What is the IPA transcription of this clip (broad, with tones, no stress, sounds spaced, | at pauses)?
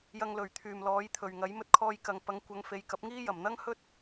j ɐ˧ ŋ l ɵ˨˩ ɥ t̪ʰ yː˨˩ m l ɔː˨˥ j t̪ʰ ɵ˨˩ ɥ ŋ ɐ˨˥ j m ɵ˥ t̚ kʰ ɔː˥ j k ɐ˧ ŋ p ɐ˨˧ ŋ kʷ ɐ˨˧ ŋ f e˨˧ j k ɐ˨˥ p̚ ŋ iː˥ j ɐ˨˩ m n̪ ɐ˥ ŋ h ɵ˥ t̚